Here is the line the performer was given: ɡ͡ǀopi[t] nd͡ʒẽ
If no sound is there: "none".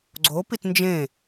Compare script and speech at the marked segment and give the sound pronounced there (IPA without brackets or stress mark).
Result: t